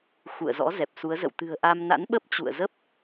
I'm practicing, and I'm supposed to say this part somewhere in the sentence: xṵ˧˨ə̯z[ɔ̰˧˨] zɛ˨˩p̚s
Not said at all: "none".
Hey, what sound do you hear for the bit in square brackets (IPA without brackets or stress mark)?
ɔ̰˧˥